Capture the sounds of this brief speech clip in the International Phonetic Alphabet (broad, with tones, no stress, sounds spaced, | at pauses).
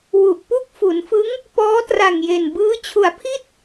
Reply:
w u˨˩ ʔ p u˥˩ k̚ f u˩˦ n f ɯ˦˥ ŋ | p ɔː˦˥ t r a˨˩ ŋ j e˨˩ n b ɯː˦˥ t͡ɕʰ u˩˦ a̯ pʰ i˥˩ t̚